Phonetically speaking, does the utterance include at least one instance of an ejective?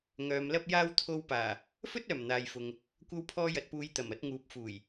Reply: no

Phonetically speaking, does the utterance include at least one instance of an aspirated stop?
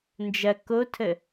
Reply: yes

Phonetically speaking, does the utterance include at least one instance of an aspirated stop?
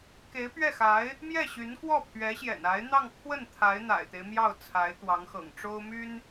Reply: yes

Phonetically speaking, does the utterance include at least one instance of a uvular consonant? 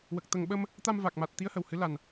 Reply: no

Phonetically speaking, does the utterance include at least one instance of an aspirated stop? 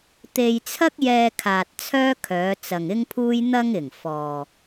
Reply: yes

